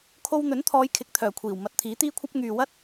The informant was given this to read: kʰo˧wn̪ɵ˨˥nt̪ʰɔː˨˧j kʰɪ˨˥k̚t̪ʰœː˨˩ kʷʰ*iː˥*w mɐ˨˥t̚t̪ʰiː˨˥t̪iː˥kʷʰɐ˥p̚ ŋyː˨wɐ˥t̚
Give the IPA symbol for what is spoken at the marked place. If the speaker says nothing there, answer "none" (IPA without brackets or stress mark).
iː˨˩